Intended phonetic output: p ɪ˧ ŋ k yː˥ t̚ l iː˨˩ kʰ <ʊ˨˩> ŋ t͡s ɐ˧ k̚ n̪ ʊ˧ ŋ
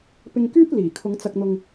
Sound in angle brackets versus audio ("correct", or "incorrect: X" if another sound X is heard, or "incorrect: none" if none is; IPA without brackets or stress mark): incorrect: ʊ˨˧